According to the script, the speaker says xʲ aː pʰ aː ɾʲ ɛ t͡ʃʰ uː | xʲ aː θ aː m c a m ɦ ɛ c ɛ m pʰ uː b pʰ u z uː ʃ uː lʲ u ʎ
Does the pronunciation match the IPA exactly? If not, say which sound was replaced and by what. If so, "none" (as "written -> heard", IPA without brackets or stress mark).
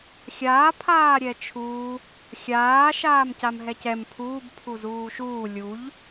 θ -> ʃ